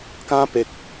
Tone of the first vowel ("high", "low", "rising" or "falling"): high